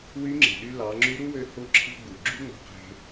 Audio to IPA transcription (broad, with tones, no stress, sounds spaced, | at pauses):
w y˧˥ ŋ͡ǁ e̤˩ ɗ y˧ l ɑ˩˧ ŋ͡ǁ y˧˥ ɾ u˥ w ø˧ h o˥ ǁʰ i̤˥ ɡ͡b u˩ ɡ͡ǁ y˥ ŋ͡m o̤˧ q e̤˧